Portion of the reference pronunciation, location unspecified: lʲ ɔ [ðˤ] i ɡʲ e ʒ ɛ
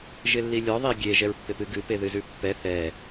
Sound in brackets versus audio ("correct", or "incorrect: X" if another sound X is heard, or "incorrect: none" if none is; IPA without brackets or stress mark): correct